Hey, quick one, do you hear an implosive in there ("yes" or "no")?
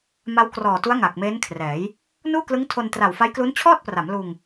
no